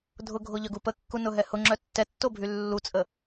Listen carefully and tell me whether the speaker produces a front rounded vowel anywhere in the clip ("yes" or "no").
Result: yes